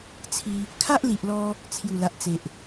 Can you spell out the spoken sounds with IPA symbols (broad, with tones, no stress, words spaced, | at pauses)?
t͡sʰi˧ | kʰa˦ʔli˨ʔlɔ˧ | t͡sʰju˨˩la˨ʔt͡se˨ʔ